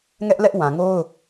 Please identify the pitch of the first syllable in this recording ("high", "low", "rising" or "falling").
high